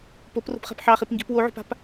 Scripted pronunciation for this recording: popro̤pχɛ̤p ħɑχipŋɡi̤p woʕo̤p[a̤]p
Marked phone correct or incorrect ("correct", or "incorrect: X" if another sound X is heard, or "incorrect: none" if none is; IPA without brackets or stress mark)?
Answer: correct